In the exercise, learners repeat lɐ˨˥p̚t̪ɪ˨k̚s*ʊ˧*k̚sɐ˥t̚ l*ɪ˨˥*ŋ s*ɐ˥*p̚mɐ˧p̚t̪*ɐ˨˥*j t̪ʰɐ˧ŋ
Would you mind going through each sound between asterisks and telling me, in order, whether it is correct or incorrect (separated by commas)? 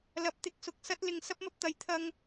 correct, incorrect, correct, incorrect